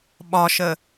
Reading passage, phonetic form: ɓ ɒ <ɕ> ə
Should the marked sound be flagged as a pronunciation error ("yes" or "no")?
yes